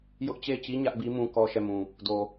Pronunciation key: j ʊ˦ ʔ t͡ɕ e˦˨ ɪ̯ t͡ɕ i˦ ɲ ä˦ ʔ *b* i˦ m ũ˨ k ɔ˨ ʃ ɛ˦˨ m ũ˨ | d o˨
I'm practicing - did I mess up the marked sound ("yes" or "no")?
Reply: no